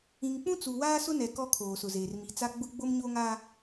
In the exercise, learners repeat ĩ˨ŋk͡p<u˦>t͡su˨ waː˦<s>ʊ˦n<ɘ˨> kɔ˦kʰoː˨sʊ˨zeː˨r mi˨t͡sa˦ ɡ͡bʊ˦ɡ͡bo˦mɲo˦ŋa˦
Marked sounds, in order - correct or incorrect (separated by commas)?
incorrect, correct, incorrect